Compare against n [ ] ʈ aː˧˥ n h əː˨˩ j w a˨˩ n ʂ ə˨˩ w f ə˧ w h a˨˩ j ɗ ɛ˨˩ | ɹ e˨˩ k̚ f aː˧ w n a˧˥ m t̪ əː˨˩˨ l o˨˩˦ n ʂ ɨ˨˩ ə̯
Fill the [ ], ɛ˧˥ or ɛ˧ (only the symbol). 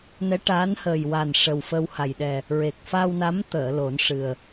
ɛ˧˥